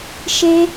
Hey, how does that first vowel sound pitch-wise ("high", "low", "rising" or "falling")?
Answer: high